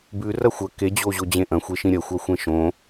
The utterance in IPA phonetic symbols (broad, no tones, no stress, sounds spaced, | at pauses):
b ʉ r ɐ xʷ ɐ k e d͡ʑ o ʑ o d͡ʑ ẽ ʔ ɐ̃ xʷ e ʃ ĩ ɾʲ ɐ xʷ a xʷ ẽ ʃ õ